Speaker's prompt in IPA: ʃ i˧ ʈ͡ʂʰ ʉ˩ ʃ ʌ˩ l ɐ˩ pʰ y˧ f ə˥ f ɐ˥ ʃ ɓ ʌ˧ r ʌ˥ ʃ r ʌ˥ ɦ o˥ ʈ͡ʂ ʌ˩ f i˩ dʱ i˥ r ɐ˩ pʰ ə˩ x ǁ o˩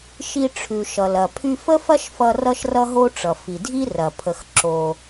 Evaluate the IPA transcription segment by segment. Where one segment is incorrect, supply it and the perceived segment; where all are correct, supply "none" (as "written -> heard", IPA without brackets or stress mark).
ɓ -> f